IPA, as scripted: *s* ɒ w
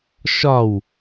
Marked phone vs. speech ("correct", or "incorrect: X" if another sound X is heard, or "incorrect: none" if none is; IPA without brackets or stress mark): incorrect: ʃ